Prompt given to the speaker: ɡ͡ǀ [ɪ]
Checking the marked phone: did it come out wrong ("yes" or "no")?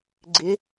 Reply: no